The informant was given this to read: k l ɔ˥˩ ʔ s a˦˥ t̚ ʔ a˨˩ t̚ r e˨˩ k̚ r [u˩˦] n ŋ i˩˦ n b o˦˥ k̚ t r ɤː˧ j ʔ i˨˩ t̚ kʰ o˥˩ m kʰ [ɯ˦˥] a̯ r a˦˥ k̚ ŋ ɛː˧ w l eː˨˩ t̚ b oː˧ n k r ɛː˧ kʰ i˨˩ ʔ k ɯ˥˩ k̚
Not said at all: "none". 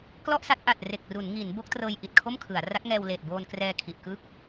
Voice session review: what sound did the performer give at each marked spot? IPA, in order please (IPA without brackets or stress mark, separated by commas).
u˩˦, ɯ˩˦